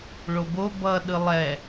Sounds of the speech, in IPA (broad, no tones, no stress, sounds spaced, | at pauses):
ɭ o b o b ʌ ɗ ɯ lˠ ɛ